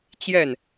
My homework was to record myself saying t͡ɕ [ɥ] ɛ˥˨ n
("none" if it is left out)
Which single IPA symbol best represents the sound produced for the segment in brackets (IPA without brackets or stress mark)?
j